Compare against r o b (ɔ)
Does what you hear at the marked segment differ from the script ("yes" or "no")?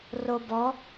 no